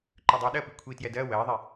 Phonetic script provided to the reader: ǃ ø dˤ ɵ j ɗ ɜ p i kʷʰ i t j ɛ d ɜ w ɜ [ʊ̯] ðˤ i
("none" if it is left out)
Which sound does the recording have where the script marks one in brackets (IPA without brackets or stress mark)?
ɪ̯